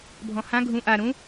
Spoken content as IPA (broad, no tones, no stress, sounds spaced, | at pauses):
bʱ ɔ̃ h ã ɡʱ ũ ʔ a ɾ ũ